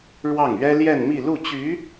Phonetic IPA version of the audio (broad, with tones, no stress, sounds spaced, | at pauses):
ɻ w ɑ˥˩ ŋ ɥ ɛ˥ l j ɛ˥˧ n m i˥˧ l u˥˩ t͡ɕ y˧˥